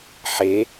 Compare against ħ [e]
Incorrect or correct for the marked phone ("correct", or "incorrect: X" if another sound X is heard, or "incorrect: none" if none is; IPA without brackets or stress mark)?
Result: correct